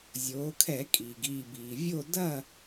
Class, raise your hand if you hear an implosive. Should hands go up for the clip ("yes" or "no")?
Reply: no